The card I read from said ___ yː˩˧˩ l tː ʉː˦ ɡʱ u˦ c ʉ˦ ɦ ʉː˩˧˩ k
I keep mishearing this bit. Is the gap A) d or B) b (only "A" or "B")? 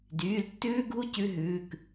A